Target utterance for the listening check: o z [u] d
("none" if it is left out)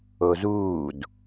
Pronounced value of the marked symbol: uː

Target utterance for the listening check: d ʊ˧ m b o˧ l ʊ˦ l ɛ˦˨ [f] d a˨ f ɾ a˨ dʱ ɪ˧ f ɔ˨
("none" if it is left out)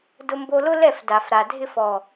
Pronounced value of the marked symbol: f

